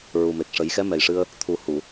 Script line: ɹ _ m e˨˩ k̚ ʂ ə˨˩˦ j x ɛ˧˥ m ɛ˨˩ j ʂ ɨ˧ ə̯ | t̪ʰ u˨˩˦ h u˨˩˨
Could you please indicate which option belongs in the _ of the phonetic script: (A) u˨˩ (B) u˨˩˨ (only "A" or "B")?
A